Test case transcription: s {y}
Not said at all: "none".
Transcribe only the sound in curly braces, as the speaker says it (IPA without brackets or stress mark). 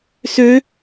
ø